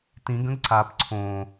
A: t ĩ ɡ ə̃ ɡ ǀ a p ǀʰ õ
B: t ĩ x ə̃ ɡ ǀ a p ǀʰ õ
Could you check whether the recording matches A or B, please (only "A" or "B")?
A